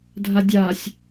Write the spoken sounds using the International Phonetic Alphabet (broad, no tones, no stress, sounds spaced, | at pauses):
dʱ a dʲ a sʲ